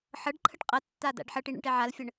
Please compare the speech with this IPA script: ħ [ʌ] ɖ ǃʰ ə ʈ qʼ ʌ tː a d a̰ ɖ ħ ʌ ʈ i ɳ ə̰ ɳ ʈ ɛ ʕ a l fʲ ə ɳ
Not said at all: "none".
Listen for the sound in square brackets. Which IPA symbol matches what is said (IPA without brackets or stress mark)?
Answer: ʌ